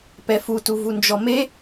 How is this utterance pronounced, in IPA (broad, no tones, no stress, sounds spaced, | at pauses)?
p ɛ f u t u v u n d͡ʒ ɔ m e